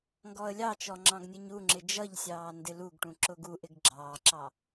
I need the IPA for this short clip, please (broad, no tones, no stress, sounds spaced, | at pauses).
ŋ ɡ ɔ ə̯ lʲ ɑ t͡ʃ ɔ ŋ͡ǁ ɑ̃ ɡ nʲ ə ɲ u ŋ͡ǁ ɪ d͡ʒ ʌ ʎ sʲ ɑː n d ɪ l u ɡ ʈ ũ ǁ ʊ ɡ u ʔ ɪ ɡ ɡ͡ǁ ɑː ǁ ɑ